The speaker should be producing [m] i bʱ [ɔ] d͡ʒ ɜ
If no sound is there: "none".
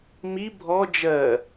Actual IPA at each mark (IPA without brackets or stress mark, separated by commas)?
m, ɔ